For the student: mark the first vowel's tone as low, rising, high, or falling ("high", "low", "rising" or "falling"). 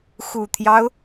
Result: low